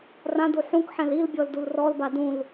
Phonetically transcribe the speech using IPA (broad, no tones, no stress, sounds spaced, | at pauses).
r ã d u ħ ũ k ħ ɛ̃ l i l bʲ ɔ l d u l r ɔ l b a d ũ l